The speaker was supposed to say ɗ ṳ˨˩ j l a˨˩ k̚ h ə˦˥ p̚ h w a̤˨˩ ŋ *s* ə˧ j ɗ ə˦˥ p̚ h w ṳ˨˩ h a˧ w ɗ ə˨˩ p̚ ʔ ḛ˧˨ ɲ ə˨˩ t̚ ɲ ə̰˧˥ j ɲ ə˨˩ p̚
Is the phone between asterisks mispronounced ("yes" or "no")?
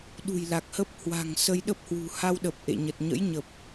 no